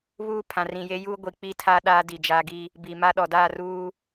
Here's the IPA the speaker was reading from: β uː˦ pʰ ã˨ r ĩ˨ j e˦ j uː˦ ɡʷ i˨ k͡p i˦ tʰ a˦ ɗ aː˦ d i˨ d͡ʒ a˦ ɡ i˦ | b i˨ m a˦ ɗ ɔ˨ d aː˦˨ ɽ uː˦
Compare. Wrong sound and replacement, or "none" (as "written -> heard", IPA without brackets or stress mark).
ɽ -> r